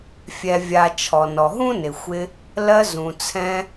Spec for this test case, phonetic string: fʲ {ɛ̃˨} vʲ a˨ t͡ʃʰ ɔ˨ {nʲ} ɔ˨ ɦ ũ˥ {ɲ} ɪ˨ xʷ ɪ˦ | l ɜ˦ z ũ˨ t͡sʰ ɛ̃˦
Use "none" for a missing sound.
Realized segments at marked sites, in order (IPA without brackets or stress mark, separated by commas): ɛ˨, n, n